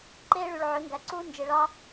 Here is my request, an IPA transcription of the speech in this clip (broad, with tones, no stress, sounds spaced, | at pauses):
ǃ eː˦ ɭ y˨ ɭ ʕ ø˨˦ ŋ ɡ æ˨ ǀ uː˦ n d͡ʒ e˨ ɭ ɑ˦